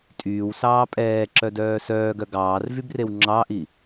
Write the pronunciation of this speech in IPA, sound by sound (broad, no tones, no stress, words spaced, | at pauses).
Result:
tʼyːwsɑː pʼɛː ǁœdœːsœːɡœ ɡɑːrvybrew ŋ͡ǁɑʔi